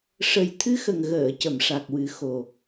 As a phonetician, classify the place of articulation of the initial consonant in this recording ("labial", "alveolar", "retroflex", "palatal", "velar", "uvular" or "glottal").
retroflex